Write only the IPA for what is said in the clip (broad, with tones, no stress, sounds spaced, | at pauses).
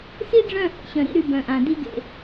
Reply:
s i˦ ɖ͡ʐ œ̃˦˨ h ə̰˦ ɕ œ̃˨ ɾ ḭ˦ ɾ y˦ b œ̃˨ ʔ ã˨ d i˦ ɡ ḛ˨